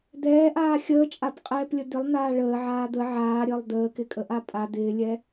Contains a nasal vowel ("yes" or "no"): no